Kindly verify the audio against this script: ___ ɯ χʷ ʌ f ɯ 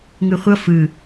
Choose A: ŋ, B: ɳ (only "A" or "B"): A